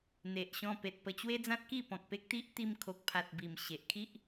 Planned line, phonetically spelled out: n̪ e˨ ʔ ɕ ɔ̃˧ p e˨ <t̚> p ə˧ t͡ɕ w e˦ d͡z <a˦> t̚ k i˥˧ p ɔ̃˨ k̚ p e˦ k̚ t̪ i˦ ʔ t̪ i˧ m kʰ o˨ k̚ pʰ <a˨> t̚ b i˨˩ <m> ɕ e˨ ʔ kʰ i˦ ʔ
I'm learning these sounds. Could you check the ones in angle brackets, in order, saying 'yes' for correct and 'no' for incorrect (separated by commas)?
yes, no, yes, yes